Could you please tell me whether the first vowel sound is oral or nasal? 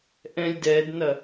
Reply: nasal